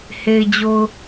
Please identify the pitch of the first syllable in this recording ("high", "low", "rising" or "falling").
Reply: low